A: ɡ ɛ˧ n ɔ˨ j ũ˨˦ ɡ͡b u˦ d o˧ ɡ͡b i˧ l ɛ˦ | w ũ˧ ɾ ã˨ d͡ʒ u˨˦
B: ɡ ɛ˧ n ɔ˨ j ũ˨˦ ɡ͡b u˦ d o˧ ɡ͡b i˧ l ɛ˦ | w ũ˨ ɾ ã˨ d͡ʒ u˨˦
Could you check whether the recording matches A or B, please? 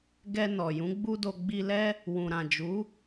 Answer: B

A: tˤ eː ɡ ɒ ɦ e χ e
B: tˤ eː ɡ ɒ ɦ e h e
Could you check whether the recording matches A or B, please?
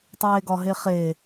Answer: A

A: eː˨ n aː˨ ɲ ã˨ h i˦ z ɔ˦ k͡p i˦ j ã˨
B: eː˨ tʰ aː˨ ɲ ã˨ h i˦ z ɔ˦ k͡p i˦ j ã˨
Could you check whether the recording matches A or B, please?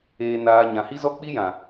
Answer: A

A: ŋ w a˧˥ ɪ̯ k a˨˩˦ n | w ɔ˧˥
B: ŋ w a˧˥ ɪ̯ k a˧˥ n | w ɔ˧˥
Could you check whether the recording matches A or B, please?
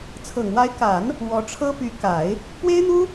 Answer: A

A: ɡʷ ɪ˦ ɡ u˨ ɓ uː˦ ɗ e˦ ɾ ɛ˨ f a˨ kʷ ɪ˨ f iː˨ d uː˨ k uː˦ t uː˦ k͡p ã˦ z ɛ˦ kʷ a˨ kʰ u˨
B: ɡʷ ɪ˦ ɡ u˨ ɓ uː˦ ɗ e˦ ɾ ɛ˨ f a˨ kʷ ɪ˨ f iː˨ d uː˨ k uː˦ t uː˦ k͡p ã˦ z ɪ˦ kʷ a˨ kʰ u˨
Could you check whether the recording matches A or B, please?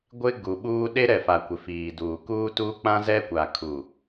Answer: A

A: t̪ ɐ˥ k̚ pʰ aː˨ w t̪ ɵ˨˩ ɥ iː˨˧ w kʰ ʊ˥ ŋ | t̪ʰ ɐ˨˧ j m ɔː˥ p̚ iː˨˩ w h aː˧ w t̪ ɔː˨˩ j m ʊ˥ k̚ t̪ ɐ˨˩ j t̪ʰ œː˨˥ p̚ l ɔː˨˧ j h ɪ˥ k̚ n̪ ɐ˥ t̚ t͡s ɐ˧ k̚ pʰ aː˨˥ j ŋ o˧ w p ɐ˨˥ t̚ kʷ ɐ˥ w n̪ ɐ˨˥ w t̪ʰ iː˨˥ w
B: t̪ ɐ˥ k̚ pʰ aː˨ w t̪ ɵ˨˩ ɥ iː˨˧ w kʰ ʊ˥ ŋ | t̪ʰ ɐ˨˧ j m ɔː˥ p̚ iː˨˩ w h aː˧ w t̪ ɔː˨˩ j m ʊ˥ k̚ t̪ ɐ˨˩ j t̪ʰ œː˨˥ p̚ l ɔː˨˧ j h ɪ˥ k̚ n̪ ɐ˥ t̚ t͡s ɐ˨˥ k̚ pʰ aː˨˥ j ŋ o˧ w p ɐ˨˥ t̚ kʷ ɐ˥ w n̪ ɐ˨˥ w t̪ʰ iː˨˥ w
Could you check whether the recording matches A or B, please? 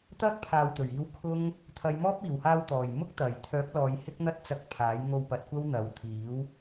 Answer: A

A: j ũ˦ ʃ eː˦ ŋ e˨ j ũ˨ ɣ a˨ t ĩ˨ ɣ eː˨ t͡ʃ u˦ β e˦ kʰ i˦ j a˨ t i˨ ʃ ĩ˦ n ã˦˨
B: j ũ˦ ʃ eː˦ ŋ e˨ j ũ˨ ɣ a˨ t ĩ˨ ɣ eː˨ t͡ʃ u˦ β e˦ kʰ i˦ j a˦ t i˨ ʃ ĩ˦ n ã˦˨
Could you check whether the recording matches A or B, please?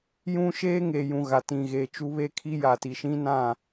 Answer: A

